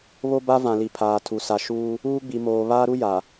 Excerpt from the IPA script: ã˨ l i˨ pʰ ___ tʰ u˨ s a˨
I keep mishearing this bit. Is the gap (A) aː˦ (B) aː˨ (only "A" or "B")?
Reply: B